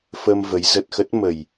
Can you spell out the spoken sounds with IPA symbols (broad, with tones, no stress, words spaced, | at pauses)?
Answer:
fə˧m və˨˦j zə˨˩t̚xə˦˥t̚mə˨˩j